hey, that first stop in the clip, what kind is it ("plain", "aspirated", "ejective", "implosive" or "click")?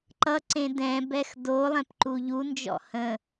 click